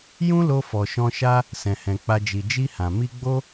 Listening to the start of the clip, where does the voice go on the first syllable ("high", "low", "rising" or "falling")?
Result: high